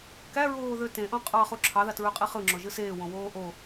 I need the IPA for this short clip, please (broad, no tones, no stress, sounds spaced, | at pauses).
k æ ɹ oː ð ø t ẽ ʔ õ qʼ ɑ χ u ǁʰ ɑ ð ɑ t ɹ ø qʼ i χ ɯ ŋ͡ǁ o ʒ ɯ s eː w õ w oː ʔ o